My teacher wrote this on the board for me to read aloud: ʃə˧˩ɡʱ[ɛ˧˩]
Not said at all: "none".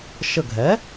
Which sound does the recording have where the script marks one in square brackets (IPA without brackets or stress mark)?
ɛ˩˥